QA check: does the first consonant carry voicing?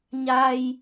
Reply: yes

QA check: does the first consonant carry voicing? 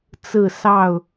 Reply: no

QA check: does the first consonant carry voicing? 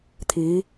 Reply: no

